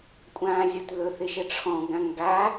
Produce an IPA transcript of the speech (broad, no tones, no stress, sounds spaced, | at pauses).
kʷʼ ãː zʲ ɔ t ð ɵ θ ɪ ʃ ə ʈ͡ʂʰ ɔ̃ ɡ ã ŋ ɡ a